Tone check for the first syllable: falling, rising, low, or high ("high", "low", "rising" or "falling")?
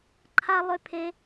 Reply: high